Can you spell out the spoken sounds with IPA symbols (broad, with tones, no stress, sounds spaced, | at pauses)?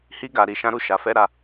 h i˧ ɡ a˨ ɾ i˨ ʃ ã˨˦ ɾ u˦˨ ʃ a˨ f ɛ˧ ɾ a˧